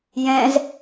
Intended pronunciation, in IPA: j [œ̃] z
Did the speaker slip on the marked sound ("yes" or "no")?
yes